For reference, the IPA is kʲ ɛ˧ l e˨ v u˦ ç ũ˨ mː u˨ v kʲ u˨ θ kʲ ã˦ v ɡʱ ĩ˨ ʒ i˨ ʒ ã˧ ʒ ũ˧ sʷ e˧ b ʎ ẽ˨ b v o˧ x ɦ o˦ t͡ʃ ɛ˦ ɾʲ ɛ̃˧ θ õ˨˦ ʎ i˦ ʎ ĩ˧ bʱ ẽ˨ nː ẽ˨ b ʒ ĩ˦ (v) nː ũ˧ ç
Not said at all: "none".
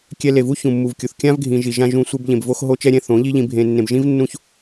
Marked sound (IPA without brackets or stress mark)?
v